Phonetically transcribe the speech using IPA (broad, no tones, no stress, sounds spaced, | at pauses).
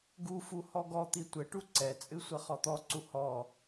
ɡ u f u h ɔ ɡ ɔ t̪ i tʷ ɘ ʈ u ǀ ɛ t͡sʼ ɨ sʷ ɐ χ ɔ t̪ ɔ ǀ u h ɔ